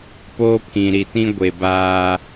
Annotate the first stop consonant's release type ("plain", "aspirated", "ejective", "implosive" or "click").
plain